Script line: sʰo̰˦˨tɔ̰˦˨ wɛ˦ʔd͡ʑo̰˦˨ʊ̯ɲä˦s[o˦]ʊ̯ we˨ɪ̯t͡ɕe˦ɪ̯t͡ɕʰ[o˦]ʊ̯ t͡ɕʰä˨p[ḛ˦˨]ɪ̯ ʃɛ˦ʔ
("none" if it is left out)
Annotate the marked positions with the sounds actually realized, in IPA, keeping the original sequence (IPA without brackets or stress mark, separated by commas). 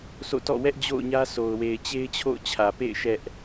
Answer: o˨, o̰˦˨, ḛ˦˨